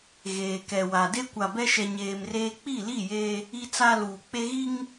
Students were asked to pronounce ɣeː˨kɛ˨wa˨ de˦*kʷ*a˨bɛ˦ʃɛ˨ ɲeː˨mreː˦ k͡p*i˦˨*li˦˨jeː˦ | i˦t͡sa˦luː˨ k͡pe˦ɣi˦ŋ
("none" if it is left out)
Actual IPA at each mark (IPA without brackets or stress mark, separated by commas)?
kʷ, i˦˨